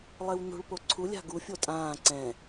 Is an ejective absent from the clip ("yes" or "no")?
no